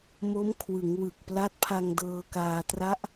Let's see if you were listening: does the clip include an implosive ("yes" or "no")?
no